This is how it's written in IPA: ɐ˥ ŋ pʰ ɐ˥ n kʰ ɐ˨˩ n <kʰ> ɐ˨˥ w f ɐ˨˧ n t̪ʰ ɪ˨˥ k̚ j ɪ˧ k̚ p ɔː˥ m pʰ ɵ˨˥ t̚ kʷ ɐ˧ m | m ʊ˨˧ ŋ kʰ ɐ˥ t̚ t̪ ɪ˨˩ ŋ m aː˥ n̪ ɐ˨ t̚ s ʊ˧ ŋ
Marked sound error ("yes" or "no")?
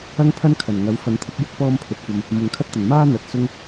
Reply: yes